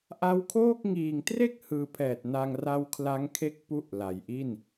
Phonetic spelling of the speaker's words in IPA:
ʔa˦˥wkʰoː˥˩k̚ ŋiː˨˩ŋtre˥˩k̚ hɯː˧pʰɛː˨˩t̚na˧ŋ ra˦˥wkʰla˦˥ŋkʰe˦˥k̚ pu˥˩ʔla˨˩jʔi˥˩n

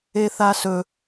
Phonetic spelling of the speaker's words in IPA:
eθasɵ

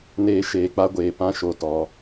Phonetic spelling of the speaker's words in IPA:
neː˦ʃeː˨˦k͡pa˦ɡʷeː˨ pã˦ʃo˨ tɔ˨˦

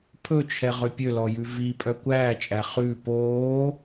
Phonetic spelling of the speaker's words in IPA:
pʰɵt͡ʃʰɛ ʁøpʲølɔ jʉvipʼœ kʷæːt͡ʃʼæ χʉ poː

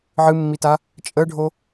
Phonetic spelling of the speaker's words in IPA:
ʕɨmːita | t͡ʃʼəɖʱo

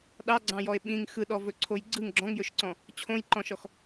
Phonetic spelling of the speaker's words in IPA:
ɗɑɡ͡ǀɑ̃jɔe̯ ɓĩŋ xɯɗɔvɵǀʰoj ɡ͡ǀɯŋ ɡ͡ǁɔ̃ŋjɵʃǀɔ̃ | t͡ɕʰõjǃɔ̃ʃɔx

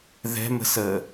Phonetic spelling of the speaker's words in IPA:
ðɛ̤mə̤səː

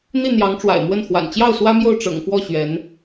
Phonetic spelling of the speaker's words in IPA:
n̪i˥˩n̪jɑ˧˥ŋʈ͡ʂwa̰˨˩ɪ̯mwə˥˩n xwa̰˨˩n t͡ɕjɑ˥˩ʊ̯ swä˥mjo˥˩ʊ̯ ʈ͡ʂɤ̰˨˩ŋfwɔ˥˩ ɕɥɛ˧˥n

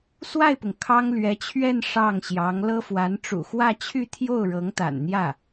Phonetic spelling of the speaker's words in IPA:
swa˥˩ɪ̯pʊ˩ŋ kʰɑ˥ŋlɥɛ˧˥t͡ɕʰɥɛ˥˧n ʂɑ˥˩ŋɕjɑ˧˥ŋ lɤ˥fwa˧˥n ʈ͡ʂṵ˨˩xwä˥˧t͡ɕʰy˥˧ t̪ʰjo˥˩ʊ̯ ɻɤ˧˥ŋt̪a̰˨˩nn̪jä˥˩

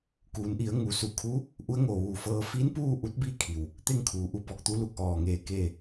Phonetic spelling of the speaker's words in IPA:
kuː˩˧nʔi˩˧ə̯ ŋu˩su˧˩kʰuː˧˥ | ʔu˧˥ə̯ŋo˧˩ʋuː˧˩fɤː˧ fi˧˥npuː˥˨ ʔu˧˥t̚bi˥˨kʰi˩w | t̪e˥˨ŋkʰuː˩˧ʔu˧ bɔː˧k̚t̪u˧˥lu˧˩k̚ ʔɔː˧˩ŋeː˧˩ keː˥˨

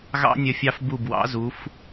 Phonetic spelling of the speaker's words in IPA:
ɣɑ̰˦nʲə˧˩fʲɑ˦f bu˧˩bwɑ̰˨˦zu˨˦f

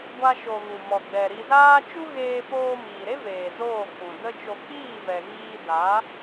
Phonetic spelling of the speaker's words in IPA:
ɡʷa˦ʃo˧ ɣu˨mɔ˨ɡ͡bɛ˨ ɾi˧zaː˦ t͡ʃu˦ɣeː˧ poː˧miː˨ɾe˦veː˨ zoː˦˨k͡pũ˨ də˧ t͡ʃo˧ k͡piː˦˨vɛ˨ɣiː˧ da˨˦

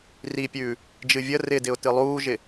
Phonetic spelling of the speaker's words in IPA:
ripʲʉː | d͡ʒɨvʲə rɪdɪʊ̯ tɨlˠuːʒɪ

